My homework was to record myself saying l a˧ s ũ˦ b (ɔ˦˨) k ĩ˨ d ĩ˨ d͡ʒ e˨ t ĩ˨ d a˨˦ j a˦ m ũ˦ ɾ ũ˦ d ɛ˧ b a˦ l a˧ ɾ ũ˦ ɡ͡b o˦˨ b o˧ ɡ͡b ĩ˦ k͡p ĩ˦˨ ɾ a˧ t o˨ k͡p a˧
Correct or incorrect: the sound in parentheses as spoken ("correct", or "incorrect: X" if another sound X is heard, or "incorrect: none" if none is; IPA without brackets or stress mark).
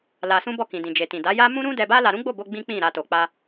correct